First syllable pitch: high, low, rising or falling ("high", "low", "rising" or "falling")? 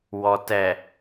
low